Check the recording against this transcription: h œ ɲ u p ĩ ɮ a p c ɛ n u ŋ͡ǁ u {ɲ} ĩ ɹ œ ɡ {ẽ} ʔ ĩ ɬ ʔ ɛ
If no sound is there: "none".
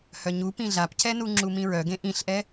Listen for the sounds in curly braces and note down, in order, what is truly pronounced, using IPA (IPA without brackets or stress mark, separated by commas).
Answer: m, ẽ